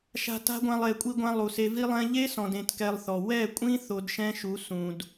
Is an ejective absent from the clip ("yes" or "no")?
no